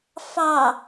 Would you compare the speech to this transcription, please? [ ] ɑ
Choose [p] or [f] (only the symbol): f